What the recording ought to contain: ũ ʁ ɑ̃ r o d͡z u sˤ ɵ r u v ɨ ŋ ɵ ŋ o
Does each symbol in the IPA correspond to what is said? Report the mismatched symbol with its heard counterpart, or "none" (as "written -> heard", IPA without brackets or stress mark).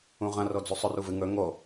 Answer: ɑ̃ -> ɐ̃